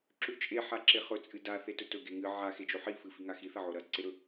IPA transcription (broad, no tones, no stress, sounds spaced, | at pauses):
ǁ ʉ t͡ʃʼ e ħ a ǁ e χ ɵ t͡sʼ ɨ d a θ e t ɵ t ɵ ɡ e ŋ ɨ ʕ a x e d͡ʒ o ħ i f ɨ f i ŋ a x i θ ɐ ʕ o ɾ ɐ ǀ e ɾ ɵ